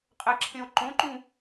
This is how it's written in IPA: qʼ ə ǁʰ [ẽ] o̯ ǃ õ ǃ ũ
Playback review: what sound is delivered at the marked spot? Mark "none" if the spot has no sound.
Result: ẽ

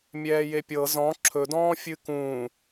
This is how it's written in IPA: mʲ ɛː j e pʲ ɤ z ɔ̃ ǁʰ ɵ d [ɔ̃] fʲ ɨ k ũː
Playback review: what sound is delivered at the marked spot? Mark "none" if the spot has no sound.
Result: ɔ̃ː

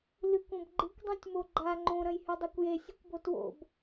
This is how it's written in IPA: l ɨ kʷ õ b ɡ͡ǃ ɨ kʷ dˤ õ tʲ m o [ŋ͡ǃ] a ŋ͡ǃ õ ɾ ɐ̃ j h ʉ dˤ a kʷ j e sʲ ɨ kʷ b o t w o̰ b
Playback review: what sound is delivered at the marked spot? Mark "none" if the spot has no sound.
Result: ɡ͡ǃ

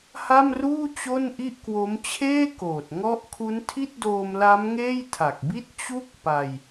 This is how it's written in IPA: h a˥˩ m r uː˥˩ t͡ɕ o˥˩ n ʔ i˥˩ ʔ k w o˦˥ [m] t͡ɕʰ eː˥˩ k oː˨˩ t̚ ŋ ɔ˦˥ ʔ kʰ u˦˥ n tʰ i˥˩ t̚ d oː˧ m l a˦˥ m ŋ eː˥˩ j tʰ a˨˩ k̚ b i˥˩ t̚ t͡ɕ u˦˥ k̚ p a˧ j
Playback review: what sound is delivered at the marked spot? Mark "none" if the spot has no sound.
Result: m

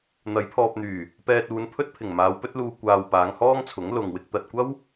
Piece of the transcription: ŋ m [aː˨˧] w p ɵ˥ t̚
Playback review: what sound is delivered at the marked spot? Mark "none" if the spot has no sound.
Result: aː˨˧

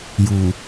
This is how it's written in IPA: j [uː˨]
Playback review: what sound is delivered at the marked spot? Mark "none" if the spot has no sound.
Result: uː˨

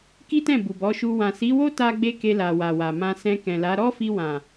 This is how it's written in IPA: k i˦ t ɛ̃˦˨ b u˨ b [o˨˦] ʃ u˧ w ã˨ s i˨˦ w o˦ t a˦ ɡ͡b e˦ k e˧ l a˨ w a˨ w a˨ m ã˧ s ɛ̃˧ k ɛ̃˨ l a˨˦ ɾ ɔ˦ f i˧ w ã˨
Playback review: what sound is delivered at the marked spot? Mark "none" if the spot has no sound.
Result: ɔ˨˦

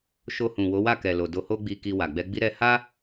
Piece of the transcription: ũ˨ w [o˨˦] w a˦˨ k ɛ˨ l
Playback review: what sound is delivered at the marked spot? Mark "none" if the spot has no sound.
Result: o˨˦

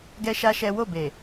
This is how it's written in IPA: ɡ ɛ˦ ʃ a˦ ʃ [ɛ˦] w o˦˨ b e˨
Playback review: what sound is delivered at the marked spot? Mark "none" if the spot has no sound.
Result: ɛ˦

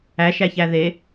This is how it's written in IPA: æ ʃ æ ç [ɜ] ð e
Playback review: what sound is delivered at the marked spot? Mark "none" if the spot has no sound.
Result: æ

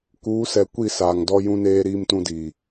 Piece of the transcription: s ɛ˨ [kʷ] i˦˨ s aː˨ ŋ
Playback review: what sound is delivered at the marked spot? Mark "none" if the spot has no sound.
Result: kʷ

